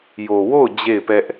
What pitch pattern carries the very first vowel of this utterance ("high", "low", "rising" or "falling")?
low